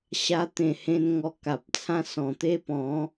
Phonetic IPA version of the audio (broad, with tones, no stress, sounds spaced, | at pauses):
ɕ a˧ t̪ ẽ˨˩ h ẽ˧ n ŋ ɔ˧ k a˨ p̚ t͡sʰ ã˦ s ɔ̃˨˩ t̪ e˦ p ɔ̃˨˦